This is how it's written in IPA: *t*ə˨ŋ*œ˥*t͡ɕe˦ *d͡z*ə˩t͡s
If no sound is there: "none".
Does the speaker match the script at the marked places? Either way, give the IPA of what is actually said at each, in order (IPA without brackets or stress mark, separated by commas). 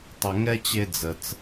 tˤ, ɛ˥, d͡z